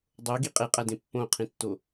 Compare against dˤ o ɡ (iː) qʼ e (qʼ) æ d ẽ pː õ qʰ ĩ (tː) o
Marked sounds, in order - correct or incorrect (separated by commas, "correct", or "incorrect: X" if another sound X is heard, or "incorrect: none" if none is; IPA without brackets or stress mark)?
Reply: incorrect: i, correct, correct